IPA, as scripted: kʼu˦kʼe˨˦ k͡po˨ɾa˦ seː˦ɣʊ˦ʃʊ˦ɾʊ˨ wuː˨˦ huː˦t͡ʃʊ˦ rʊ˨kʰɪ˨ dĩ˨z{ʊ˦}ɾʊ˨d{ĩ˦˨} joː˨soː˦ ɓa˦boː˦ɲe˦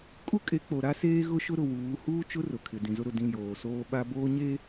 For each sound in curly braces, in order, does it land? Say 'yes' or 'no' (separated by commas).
yes, yes